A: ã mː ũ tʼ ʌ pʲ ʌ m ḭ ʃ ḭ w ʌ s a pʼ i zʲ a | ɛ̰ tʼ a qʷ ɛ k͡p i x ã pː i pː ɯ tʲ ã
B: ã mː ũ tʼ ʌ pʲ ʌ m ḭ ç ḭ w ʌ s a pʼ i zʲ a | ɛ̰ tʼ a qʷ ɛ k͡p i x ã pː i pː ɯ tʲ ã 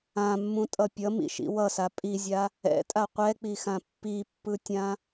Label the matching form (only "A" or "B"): A